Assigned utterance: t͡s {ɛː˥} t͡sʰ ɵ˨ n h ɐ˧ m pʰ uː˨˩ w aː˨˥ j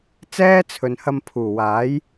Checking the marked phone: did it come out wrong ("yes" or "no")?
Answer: no